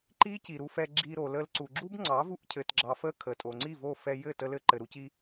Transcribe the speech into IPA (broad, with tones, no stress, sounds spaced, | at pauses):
ǃ i˦ c i˨ ɾ u˧ f ɛ˧ ɡ͡ǁ i˧ ɾ o˨ l ə˧ l ǀ u˨ ɡ͡ǁ u˦ b ŋ͡ǀ ɑ˨˦ v u˧ ʔ cʰ ɘ˨ t ɡ͡ǁ ɑ˨ f ə˧ kʰ ə˨ tʼ o˨ ŋ͡ǀ i˦˨ v o˦˨ f ɛ˧ j ɘ˦˨ t ə˧ l ɘ˧ ǃ ɘ˨ ɾ u˧ c i˧